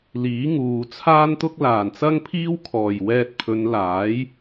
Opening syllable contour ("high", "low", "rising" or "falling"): rising